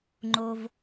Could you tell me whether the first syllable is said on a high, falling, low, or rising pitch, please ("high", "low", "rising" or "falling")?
high